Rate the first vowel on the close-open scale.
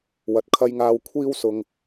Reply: open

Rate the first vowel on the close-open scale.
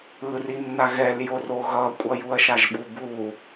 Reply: close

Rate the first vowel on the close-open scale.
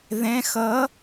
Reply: mid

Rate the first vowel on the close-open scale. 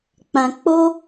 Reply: open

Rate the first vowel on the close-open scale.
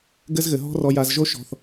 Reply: mid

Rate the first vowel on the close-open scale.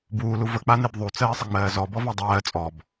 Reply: close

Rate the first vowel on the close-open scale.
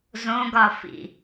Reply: mid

